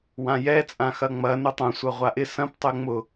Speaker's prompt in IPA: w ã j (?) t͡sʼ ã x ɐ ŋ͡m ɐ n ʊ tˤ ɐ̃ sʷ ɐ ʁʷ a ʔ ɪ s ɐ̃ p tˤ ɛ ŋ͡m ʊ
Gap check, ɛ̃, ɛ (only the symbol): ɛ